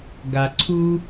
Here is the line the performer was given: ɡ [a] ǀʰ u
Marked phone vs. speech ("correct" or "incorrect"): correct